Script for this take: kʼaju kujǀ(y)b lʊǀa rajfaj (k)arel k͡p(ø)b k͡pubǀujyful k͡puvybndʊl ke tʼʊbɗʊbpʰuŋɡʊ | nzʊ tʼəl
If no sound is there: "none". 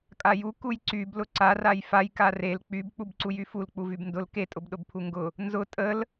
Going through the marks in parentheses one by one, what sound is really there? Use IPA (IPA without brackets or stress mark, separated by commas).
y, k, y